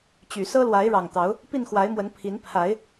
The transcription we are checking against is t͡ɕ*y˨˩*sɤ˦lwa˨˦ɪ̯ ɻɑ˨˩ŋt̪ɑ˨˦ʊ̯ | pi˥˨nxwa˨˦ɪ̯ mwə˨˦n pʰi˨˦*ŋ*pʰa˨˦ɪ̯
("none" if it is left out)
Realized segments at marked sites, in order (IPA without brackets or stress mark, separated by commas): y˨˩, n